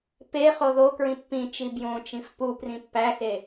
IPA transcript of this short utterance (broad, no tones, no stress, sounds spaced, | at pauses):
p e χ o ð o k ɹ ĩ pː ĩ t͡ʃ i b j õ t͡ʃ ĩ f p u p r ĩ pː æ x e